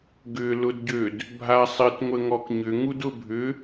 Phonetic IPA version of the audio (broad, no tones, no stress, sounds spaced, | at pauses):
ɡ ʏ l ʊ d ɟ ø d | bʱ a sˤ ɪ t ŋʷ ə ŋ ɔ k ɲ ʏ ŋ u d ʊ bʱ ʏ